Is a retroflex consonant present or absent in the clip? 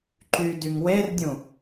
absent